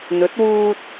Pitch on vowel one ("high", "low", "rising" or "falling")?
rising